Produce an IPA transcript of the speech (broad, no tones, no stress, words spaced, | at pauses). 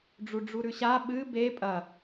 ɖ͡ʐuɖ͡ʐuɾʉɕa ɓɨ be pʼɐ